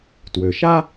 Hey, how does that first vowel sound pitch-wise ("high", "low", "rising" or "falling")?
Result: low